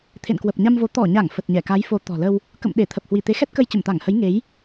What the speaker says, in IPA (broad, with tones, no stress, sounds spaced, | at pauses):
t̪ʰ ḛ˧˨ n k w ə˨˩ p̚ ɲ a˧ m v o˨˦ t̪ ɔ˧˩ ɲ a˧˩ ŋ f ə˨˩ t̚ ɲ ɛ˧˩ k a˨˦ j f o˨˦ t̪ ɔ̤˨˩ l ə˧ w | k ə̰˧˨ m ɗ e˧˩ t̪ʰ ə˨˩ p̚ h w i˧˩ t̪ e˨˦ x ɛ˦˥ t̚ k ə˧ j t͡ɕ ə˧˩ m t̪ a˧˩ ŋ h ə˨˦ j ŋ e˨˦ j